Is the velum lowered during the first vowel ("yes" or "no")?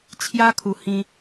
no